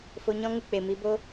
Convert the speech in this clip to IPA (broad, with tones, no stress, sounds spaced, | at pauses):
f o˧ ɲ ɔ̃˦ ŋ u˦ k͡p e˨ m i˨˦ b o˦